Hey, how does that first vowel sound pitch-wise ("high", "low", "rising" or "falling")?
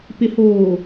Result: low